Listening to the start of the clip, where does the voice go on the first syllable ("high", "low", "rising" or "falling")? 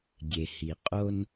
low